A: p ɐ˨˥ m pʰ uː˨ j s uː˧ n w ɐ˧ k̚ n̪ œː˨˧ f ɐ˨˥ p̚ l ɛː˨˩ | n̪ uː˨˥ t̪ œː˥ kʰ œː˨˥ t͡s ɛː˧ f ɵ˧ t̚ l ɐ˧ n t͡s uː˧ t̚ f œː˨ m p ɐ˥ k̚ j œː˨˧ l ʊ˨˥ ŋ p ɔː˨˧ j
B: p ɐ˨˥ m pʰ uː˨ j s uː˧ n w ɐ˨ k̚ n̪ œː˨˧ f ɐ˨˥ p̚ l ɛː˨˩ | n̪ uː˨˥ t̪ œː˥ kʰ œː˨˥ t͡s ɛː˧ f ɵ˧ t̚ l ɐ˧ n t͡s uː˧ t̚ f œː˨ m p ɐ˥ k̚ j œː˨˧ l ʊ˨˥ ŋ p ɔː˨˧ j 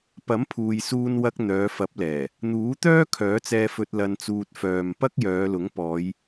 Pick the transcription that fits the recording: A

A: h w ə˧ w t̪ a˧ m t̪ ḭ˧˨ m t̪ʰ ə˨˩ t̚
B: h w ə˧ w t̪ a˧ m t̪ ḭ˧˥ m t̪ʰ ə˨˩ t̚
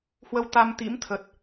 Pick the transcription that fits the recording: B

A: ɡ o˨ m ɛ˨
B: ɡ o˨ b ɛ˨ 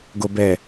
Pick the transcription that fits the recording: B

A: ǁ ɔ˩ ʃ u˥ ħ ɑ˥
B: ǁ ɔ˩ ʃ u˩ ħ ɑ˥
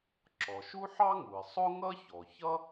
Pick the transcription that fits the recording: A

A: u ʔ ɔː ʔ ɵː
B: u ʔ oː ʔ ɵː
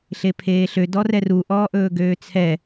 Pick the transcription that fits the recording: A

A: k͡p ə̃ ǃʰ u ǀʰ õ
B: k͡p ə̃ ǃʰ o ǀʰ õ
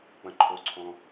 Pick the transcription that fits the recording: B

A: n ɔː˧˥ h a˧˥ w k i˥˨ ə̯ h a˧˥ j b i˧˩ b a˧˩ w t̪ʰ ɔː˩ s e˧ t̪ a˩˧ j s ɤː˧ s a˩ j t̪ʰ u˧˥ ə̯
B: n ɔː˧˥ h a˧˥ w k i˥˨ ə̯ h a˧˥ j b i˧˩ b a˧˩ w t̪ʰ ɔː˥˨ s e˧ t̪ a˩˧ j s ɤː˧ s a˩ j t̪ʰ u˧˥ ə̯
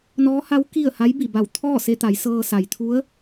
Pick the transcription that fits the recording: B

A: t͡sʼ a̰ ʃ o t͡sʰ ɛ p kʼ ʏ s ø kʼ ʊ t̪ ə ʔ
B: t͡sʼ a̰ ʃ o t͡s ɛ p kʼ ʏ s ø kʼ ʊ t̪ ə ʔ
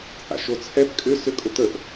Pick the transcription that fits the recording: A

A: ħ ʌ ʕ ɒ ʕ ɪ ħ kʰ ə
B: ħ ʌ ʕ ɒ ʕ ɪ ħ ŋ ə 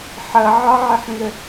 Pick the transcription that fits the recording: B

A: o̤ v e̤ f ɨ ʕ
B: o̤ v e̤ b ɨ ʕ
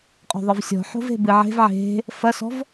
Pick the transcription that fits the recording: B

